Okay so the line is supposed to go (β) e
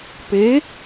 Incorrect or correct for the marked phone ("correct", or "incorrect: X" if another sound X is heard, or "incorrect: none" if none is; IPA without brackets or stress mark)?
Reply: incorrect: p